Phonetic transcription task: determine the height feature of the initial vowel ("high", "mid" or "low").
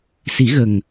high